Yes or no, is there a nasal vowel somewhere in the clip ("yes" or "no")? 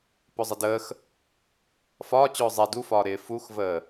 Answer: no